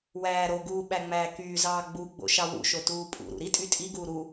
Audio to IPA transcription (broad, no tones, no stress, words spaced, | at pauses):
wæːɾoɡuː ɓæŋ͡mæːkyːzɑː ɡ͡buɡ͡bo̰ ʃɑwṵʃo tuːpʼṵɾṵ ɾitʼy tʼiɡuː ɾu